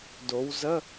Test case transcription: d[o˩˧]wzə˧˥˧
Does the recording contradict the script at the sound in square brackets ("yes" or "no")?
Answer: no